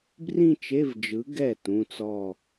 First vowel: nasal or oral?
nasal